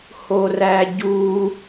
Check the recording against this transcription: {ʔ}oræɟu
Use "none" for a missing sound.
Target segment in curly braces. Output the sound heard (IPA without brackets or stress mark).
h